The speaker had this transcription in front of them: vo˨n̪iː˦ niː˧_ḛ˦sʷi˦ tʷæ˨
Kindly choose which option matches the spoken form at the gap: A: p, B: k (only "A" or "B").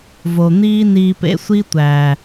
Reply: A